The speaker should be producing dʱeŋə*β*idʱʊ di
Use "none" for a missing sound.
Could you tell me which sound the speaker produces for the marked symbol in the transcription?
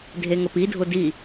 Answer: p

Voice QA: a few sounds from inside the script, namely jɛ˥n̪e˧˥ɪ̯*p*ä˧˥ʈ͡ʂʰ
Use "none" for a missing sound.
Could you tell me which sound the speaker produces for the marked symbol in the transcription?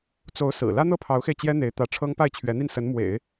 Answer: t̪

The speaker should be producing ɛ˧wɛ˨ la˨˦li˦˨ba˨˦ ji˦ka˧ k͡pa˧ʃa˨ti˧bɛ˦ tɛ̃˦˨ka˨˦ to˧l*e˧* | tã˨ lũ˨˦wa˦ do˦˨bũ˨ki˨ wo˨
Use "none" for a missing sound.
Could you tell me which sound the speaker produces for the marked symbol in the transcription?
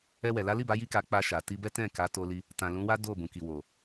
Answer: i˧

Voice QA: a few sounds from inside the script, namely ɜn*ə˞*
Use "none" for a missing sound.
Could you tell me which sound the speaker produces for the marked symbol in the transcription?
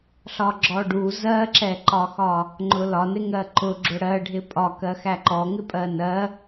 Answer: ɜ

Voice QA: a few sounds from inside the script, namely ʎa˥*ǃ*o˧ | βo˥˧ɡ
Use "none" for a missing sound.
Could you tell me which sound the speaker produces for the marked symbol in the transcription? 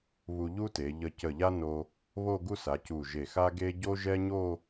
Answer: n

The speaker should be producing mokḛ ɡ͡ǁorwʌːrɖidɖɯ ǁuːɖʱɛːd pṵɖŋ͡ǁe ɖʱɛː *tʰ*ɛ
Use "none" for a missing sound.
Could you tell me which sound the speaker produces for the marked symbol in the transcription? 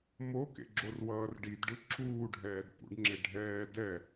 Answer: d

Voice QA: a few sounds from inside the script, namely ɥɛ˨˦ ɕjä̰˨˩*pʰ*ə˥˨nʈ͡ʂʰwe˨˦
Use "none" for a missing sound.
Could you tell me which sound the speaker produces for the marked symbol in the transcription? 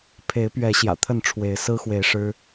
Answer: t̪ʰ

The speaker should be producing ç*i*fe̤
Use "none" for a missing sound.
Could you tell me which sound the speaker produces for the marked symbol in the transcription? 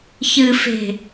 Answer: ɨ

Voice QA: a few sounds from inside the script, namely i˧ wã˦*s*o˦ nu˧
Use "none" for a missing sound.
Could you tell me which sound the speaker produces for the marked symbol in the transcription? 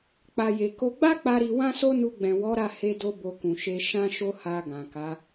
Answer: s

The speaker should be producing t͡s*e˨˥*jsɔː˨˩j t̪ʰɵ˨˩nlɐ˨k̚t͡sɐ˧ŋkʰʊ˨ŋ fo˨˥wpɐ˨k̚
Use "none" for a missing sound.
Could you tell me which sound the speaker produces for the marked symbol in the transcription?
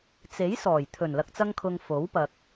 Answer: e˨˥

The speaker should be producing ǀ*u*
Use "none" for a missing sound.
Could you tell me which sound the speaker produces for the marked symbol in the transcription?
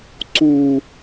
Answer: u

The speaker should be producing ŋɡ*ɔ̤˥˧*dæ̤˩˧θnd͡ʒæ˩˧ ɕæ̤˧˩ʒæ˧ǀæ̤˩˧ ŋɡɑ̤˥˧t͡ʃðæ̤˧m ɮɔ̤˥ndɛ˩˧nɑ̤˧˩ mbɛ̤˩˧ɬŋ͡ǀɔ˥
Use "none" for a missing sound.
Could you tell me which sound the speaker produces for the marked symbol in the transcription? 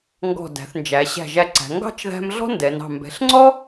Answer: ɔ̤˧˩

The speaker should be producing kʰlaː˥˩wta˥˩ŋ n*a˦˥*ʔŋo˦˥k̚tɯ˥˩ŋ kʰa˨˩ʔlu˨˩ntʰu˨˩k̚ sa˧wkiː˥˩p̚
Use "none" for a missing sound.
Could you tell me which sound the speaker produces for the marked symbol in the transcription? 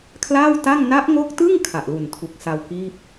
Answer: a˦˥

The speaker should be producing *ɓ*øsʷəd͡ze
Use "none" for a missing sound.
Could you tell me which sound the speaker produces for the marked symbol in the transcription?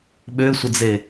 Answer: ɓ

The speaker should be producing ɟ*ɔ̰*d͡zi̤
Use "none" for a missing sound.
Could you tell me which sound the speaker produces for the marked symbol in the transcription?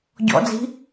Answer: ɔ̰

